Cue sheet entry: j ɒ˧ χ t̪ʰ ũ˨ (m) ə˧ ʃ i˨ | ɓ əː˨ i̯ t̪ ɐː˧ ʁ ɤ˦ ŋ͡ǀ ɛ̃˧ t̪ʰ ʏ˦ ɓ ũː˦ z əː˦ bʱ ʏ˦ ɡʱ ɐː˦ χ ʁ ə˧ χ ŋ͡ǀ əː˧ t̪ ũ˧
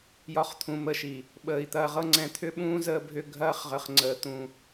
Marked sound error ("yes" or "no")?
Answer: no